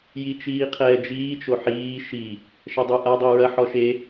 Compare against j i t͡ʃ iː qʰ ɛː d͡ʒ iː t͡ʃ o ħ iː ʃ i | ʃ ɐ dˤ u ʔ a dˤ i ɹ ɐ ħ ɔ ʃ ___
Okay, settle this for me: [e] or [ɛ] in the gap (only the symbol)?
e